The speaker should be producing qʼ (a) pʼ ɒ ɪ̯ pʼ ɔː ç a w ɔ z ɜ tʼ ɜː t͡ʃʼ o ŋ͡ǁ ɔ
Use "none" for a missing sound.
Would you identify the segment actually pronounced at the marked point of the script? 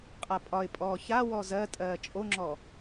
a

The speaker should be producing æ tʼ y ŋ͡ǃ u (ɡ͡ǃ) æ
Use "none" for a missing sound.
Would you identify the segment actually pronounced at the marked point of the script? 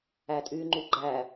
ɡ͡ǃ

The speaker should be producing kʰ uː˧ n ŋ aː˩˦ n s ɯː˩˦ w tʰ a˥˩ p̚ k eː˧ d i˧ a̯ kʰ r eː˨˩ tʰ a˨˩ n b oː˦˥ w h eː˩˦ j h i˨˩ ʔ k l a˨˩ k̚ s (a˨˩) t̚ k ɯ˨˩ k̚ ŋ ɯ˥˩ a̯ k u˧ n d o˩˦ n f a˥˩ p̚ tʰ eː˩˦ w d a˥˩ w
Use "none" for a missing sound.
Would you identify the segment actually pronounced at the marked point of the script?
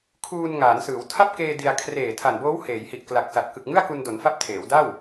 a˨˩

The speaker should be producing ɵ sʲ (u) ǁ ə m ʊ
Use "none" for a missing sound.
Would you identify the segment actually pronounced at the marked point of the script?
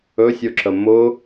o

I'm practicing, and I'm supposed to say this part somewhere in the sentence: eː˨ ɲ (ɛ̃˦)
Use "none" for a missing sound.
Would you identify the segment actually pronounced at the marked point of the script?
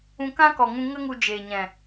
ɛ̃˨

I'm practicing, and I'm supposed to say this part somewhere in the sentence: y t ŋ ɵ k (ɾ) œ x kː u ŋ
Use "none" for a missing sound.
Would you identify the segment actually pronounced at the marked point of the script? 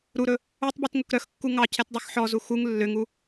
ɾ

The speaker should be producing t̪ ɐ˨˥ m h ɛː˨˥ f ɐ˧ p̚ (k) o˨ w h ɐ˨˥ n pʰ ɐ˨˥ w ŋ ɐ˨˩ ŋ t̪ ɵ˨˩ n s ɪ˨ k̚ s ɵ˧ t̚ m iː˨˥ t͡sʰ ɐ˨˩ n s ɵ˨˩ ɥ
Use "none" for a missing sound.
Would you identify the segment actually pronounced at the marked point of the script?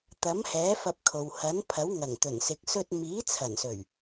kʰ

